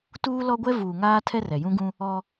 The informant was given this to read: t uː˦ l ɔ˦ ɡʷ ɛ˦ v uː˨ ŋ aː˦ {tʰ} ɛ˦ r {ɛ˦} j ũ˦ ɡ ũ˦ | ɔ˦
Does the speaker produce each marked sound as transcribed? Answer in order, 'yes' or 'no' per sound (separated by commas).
yes, no